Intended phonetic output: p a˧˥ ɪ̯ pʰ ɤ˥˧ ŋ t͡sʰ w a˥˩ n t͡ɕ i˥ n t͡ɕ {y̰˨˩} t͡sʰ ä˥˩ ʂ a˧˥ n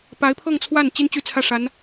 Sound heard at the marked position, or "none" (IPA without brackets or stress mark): y˥